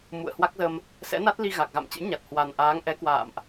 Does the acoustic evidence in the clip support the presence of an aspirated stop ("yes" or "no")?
no